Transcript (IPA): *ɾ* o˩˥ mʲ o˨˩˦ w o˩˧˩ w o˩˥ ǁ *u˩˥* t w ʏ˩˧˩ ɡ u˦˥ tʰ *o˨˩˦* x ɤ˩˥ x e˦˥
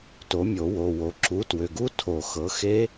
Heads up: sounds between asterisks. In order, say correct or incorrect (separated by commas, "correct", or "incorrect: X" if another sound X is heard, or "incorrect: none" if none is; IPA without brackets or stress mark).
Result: incorrect: t, correct, correct